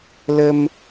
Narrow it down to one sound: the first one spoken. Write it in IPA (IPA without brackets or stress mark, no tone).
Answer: l